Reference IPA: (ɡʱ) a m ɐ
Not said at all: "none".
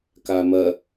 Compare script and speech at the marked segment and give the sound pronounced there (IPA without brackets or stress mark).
k